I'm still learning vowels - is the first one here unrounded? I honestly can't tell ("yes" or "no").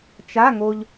yes